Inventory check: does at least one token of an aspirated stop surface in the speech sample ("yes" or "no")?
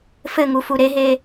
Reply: no